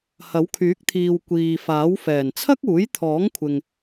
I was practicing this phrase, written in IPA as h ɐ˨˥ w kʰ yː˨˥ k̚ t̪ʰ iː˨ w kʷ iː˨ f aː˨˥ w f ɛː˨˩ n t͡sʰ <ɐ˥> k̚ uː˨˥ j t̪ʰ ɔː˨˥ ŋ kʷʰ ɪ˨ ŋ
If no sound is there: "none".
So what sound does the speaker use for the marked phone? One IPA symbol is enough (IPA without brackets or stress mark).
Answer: ɐ˥